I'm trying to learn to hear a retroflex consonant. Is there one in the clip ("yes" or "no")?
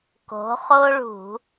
yes